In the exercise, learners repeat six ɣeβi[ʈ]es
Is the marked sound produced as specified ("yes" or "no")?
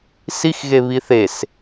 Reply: no